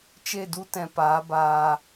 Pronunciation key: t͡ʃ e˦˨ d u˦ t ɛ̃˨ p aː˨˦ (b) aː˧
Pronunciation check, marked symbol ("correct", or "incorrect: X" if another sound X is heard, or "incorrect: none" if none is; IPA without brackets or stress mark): correct